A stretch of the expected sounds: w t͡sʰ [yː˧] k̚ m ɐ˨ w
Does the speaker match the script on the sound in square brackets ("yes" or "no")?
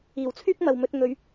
no